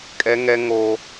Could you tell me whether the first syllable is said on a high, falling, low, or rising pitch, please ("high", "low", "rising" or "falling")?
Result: high